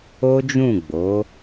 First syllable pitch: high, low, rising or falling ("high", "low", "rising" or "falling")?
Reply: high